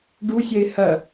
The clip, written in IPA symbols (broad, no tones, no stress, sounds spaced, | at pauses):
ɖ u sʲ ɛ ɪ̯ h ɐ